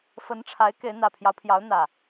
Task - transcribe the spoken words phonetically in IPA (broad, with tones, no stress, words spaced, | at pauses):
fə˨˦nʈ͡ʂʰa˨˦ɪ̯ ke˨˦ɪ̯n̪ä˨˩pʰjɑ˦ʊ̯pʰjɑ˨˦ʊ̯ n̪ä˨˩